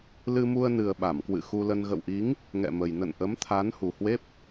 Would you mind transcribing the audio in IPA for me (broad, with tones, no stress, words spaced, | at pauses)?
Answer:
lɨ˧mu˧ə̯ nɨ˨˩ə̯ɓa˧˩mkwɨ̰˧˨ xu˧lə˧n ɣə̰˧˨wʔi˨˦ŋ | ŋɛ̰˧˨mə˨˩j nə̰˧˨nʔə˨˦m t̪ʰa˨˦n hu˨˩hwe˦˥p̚